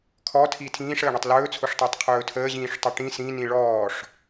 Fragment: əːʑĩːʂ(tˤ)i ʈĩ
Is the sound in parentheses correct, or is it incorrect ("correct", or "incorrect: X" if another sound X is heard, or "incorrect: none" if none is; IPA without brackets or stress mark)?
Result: correct